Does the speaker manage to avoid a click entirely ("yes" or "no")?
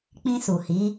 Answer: yes